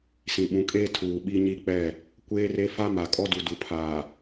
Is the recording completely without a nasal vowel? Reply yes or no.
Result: no